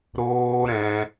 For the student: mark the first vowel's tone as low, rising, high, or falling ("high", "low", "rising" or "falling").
high